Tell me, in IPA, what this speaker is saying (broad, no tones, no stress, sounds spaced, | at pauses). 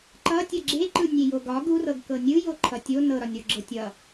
ǃ ʌ tʲ ʌ ɡ͡ǁ e ǃ ɯ nʲ e j o ɡ ɒ ɡ u r ɤ ɡ k ɤ nʲ ɯ j o ǃʰ ʌ tʲ o n ɤ ɾ ɒ nʲ ɾ o ɡ͡ǁ ɤ tʲ ʌ